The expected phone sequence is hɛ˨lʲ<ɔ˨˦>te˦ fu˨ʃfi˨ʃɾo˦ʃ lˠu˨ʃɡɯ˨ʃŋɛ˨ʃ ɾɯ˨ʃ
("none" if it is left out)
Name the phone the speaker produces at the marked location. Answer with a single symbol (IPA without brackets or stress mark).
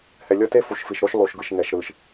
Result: ɔ˦